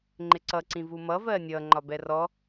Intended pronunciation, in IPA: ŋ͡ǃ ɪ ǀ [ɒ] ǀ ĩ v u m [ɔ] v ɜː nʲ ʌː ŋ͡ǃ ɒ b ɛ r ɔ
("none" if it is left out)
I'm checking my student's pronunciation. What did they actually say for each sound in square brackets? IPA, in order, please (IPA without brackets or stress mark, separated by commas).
ʌ, ʌ